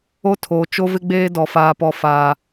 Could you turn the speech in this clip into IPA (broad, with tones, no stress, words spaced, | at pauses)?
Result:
o˦tʰoː˨ t͡ʃo˦vɪ˦ɡ͡beː˦ dɔ˨faː˨pɔ˨ faː˨